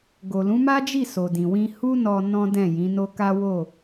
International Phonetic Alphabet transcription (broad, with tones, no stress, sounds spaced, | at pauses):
ɡ o˨ l ũ˨˦ m a˦ d͡ʒ i˦˨ s o˨ d ĩ˨ w ĩ˧ h u˦ n ɔ˧ n ɔ̃˦ d ɛ̃˦˨ j ĩ˨˦ n o˦ k a˦ w o˦˨